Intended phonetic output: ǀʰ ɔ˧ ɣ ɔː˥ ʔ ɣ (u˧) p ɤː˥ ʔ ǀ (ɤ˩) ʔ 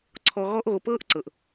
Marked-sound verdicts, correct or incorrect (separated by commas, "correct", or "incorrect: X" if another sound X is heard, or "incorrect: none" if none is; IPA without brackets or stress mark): incorrect: o˧, correct